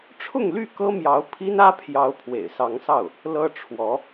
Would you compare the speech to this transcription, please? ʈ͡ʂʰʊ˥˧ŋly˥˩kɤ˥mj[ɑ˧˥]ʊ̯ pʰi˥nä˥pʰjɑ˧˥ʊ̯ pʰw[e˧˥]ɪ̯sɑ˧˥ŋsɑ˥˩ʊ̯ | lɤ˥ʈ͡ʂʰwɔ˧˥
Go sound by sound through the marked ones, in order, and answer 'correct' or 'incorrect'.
correct, incorrect

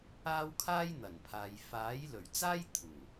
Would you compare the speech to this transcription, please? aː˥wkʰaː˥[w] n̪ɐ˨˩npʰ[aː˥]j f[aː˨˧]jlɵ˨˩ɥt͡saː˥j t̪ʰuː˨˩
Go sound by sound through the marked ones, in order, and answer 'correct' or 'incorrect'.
incorrect, incorrect, incorrect

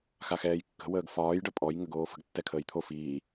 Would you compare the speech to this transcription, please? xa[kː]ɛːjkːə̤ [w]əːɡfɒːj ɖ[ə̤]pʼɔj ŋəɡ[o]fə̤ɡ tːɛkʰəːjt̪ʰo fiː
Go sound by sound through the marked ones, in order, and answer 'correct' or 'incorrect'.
incorrect, correct, incorrect, incorrect

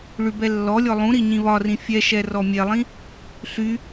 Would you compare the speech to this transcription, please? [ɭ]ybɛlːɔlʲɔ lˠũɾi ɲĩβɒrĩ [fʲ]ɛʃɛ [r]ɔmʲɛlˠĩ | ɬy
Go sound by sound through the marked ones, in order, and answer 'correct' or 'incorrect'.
correct, correct, correct

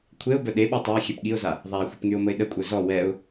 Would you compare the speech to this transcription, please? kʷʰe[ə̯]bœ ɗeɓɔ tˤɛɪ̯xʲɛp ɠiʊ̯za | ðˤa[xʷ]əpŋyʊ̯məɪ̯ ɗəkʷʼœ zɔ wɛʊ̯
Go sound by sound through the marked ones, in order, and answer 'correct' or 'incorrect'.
incorrect, correct

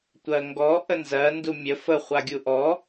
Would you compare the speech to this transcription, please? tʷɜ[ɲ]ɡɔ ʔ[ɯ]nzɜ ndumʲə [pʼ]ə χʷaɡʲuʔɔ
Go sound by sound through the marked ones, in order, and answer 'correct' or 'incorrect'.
incorrect, incorrect, incorrect

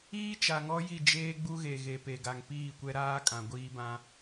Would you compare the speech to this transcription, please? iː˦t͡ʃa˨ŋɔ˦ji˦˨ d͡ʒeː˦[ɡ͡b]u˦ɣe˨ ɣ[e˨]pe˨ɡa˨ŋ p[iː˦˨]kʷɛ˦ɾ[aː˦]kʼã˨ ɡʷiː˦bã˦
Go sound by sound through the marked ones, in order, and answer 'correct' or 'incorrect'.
correct, correct, correct, correct

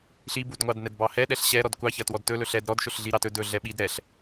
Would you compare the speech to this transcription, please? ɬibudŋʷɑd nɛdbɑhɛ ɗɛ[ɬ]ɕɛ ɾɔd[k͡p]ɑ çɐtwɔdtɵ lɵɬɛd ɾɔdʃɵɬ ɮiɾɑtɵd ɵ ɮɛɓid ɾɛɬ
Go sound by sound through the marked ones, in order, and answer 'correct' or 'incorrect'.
correct, incorrect

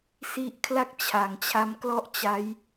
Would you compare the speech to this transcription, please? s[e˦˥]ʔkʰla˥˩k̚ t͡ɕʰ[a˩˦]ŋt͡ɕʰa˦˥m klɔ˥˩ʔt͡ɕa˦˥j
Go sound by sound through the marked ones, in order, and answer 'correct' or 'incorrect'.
incorrect, correct

